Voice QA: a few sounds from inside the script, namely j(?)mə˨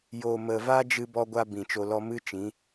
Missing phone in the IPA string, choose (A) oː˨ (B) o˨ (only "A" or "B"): B